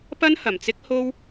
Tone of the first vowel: high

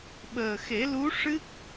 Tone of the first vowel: low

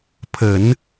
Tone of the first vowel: low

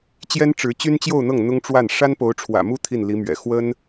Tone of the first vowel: high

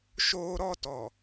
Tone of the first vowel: high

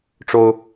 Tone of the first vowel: high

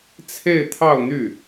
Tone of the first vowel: falling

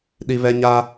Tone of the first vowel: high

